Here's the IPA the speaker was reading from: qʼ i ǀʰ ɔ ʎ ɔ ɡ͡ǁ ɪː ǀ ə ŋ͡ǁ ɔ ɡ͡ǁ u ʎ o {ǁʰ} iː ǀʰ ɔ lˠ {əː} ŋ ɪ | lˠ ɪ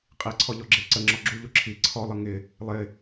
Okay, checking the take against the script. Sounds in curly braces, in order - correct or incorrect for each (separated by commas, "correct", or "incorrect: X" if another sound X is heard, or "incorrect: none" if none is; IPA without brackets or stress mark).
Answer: correct, incorrect: ə